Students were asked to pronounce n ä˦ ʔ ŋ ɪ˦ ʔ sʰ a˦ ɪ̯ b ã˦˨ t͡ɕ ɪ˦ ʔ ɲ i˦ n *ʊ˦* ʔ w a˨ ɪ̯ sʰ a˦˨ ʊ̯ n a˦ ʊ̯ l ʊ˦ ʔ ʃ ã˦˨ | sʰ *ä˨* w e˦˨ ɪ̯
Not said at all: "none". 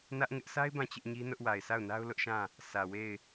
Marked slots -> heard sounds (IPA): ʊ˦, ä˨

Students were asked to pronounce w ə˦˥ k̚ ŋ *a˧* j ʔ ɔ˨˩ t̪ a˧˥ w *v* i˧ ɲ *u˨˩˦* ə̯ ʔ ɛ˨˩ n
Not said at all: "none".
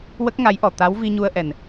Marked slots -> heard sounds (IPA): a˧˥, v, u˧

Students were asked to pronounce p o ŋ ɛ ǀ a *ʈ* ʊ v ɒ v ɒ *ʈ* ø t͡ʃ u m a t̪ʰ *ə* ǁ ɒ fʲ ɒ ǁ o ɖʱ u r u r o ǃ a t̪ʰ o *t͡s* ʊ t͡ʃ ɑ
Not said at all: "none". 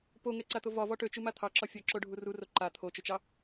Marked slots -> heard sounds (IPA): t̪, ʈ, ɑ, t͡ʃ

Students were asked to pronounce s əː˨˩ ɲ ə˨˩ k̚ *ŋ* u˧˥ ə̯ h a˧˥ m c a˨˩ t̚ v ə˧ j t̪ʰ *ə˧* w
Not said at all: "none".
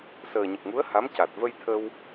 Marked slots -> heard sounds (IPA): ŋ, ə˧

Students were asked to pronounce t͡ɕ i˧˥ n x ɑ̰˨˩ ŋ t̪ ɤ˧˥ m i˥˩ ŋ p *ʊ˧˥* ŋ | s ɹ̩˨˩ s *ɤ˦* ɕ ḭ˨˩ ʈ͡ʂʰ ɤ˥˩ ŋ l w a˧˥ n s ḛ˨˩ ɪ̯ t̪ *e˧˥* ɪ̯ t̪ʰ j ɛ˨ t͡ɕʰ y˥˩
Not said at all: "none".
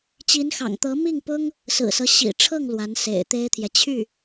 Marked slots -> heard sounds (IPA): ʊ˥, ɤ˦, e˥

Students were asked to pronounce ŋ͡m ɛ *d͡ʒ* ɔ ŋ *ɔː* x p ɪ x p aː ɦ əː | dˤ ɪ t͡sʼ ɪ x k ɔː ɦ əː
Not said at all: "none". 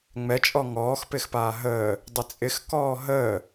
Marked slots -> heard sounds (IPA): t͡ʃʼ, ɔː

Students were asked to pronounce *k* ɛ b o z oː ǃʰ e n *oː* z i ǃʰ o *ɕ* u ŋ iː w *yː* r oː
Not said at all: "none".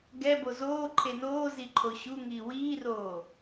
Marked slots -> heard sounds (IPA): ɡ, oː, ɕ, iː

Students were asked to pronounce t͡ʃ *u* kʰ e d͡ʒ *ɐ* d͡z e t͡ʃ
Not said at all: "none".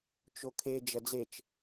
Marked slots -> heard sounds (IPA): o, ɐ

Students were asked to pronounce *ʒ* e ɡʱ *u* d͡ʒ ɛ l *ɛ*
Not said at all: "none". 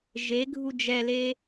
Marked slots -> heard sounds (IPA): ʒ, u, e

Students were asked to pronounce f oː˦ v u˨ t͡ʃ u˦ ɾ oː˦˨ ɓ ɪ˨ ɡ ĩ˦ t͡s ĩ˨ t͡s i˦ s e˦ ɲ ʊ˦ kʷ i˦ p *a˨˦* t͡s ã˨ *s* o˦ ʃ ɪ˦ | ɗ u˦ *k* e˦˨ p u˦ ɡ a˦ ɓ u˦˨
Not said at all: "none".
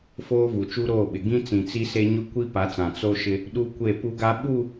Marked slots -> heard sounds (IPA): a˨˦, t͡s, kʷ

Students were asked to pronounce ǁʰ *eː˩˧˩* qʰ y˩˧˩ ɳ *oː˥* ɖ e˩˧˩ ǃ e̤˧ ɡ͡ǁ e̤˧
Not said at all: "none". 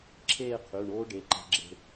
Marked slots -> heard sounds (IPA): eː˥˧, oː˥

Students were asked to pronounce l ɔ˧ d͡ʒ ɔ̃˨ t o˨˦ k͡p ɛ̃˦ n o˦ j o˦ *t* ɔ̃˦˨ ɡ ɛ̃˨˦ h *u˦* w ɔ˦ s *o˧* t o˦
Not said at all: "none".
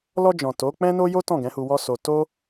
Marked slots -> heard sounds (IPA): t, u˧, o˧

